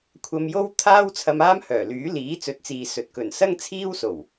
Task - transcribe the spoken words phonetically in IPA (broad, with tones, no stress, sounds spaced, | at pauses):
kʷʰ ɐ˨ m j o˧ w t̪ʰ aː˥ w t͡sʰ ɐ˧ m aː˥ m h œː˨˩ l yː˨˥ l iː˨˥ t͡s ɵ˨˥ t̚ t͡s iː˨ s ɵ˨ t̚ k ɵ˨˩ n s ɐ˥ ŋ t͡sʰ iː˥ w s o˨˩ w